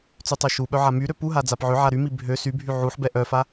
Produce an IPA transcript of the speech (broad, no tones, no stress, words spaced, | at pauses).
t͡sytˤœʃuɓœ ʕamyɾø puɦa d͡zapʕøʕa ɾymi bʱø sybʱy ʕuħbɛ ʔœfa